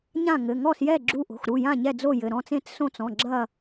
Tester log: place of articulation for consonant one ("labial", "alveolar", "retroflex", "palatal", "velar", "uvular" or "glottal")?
palatal